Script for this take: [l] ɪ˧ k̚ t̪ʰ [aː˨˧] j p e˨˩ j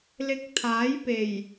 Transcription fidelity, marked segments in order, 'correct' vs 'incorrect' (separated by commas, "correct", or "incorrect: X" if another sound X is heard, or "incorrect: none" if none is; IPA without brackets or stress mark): correct, incorrect: aː˨˥